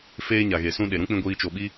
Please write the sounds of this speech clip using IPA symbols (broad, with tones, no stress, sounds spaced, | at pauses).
f eː˧ ɲ a˨ ɣ e˨ s ũ˧ ɗ e˨ ɾ ũ˦ k͡p ĩ˧ ɡʷ iː˧ t͡ʃ o˧ ɓ i˦